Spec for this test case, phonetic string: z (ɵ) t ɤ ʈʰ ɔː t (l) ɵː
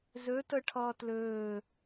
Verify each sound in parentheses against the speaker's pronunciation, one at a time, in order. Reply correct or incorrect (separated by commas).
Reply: correct, correct